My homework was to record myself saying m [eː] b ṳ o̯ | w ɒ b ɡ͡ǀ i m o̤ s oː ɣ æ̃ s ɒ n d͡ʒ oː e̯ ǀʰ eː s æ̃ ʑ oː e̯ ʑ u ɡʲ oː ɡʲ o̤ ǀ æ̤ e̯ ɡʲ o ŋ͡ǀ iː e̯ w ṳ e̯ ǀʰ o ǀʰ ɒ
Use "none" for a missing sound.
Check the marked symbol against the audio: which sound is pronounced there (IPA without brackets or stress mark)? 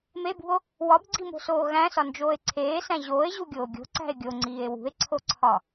e